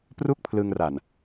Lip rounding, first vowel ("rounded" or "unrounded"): rounded